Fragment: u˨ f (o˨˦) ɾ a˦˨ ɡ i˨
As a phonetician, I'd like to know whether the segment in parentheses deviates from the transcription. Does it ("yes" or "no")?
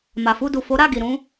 no